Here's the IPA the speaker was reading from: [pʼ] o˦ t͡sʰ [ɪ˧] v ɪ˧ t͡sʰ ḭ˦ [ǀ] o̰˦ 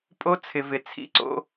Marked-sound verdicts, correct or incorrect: correct, correct, correct

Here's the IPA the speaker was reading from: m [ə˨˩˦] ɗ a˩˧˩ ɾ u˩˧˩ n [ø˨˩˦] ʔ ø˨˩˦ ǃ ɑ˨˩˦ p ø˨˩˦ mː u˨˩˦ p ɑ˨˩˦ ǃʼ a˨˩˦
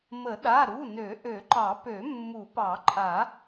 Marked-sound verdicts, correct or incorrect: correct, correct

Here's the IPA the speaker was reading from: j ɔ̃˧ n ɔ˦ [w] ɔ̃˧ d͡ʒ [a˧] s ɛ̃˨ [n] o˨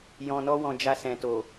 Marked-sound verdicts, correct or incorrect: correct, correct, incorrect: t

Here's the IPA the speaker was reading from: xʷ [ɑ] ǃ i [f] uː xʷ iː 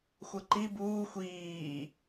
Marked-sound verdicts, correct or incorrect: incorrect: ɐ, incorrect: b

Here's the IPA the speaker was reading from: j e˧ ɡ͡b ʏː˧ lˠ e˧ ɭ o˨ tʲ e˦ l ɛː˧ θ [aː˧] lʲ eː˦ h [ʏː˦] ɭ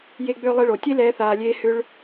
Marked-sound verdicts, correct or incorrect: correct, incorrect: ʏ˦

